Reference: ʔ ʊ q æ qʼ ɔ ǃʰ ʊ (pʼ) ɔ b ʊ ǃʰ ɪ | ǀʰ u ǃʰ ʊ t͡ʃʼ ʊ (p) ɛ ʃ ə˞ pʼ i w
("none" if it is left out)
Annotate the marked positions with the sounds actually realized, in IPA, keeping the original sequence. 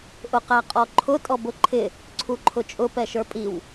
tʼ, p

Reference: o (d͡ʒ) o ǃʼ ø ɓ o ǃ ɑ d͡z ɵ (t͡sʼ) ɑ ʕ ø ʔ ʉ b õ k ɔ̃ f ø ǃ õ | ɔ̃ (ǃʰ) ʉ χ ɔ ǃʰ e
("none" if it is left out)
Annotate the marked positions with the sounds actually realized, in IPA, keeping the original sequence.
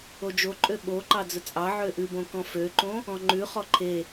d͡ʒ, t͡sʼ, ŋ͡ǃ

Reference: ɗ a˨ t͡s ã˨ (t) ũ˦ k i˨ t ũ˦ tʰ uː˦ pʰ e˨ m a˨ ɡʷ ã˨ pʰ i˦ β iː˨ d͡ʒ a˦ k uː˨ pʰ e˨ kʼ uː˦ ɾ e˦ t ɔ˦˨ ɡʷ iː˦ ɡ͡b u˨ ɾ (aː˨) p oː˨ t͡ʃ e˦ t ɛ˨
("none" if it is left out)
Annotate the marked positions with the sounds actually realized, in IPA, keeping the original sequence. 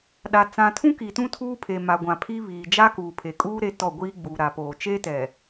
tʰ, a˨

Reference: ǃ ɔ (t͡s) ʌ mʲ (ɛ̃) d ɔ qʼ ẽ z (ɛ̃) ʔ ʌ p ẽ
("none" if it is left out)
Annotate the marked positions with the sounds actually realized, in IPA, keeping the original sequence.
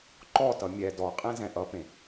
t, ɛ, ɛ̃

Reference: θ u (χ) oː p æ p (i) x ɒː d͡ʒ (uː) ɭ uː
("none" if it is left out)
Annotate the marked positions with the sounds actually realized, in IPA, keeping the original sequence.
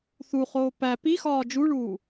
χ, i, u

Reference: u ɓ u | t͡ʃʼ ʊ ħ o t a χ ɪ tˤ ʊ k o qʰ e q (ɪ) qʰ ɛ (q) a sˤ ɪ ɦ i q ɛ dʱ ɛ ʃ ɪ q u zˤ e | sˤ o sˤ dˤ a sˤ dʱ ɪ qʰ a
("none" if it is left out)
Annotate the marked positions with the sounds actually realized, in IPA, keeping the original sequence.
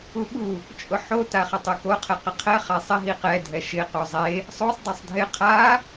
ɪ, χ

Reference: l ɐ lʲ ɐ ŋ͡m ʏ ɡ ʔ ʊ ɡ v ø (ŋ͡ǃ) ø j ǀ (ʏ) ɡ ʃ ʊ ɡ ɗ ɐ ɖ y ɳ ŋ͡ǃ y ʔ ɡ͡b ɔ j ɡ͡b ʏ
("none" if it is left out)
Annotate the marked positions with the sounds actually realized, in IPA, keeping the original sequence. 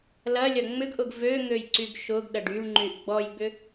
ŋ, y

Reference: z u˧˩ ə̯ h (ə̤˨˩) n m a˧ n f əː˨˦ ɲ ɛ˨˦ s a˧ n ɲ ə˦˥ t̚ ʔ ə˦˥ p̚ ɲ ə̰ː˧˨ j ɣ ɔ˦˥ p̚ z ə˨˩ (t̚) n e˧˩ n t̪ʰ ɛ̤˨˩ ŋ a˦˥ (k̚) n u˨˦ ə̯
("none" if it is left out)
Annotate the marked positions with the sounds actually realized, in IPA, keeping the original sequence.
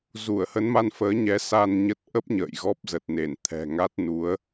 ə˨˦, t̚, t̚

